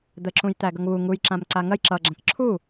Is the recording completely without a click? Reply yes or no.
no